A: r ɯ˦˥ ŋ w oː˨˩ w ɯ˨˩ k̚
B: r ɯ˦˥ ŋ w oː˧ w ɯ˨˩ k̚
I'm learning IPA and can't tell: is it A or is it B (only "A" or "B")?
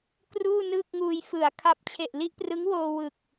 B